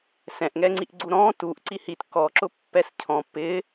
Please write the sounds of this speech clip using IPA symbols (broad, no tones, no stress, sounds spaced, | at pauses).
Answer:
s ɛ̃ ʔ ŋ ɛ ŋ͡ǀ i ʔ ɡ͡ǀ u ɾ ɔ̃ t u ʔ ǀ i h i t k ɔ ǁ ʊ pː ɛ s cʰ ɔ̃ p ɪ